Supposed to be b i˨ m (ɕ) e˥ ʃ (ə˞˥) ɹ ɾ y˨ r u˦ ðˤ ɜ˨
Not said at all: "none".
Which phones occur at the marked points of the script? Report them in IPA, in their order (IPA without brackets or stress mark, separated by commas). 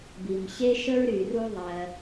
ɕ, ə˥